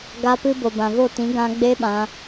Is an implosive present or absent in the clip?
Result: present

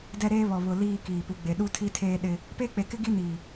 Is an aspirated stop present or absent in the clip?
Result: present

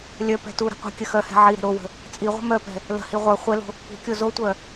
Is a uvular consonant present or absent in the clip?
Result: present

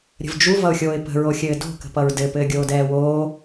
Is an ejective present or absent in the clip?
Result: absent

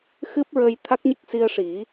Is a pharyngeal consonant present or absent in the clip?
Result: absent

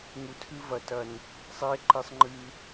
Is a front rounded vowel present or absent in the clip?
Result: absent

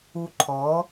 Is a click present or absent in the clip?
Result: present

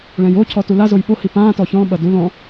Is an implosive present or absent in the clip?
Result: present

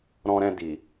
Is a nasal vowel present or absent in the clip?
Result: present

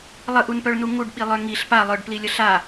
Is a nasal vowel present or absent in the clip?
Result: absent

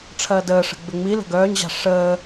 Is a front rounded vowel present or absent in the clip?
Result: present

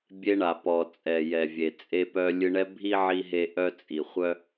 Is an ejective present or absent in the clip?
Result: present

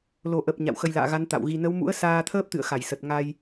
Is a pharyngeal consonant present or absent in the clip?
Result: absent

